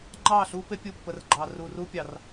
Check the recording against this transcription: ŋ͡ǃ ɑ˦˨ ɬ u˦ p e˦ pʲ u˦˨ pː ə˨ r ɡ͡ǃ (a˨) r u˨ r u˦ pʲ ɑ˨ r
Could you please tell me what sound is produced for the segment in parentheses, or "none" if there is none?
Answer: ɑ˨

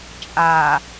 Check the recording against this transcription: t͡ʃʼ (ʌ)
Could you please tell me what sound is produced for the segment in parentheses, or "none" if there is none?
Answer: a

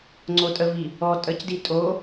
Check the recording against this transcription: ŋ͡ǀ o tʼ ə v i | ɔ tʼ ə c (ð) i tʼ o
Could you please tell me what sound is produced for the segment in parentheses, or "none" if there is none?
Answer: d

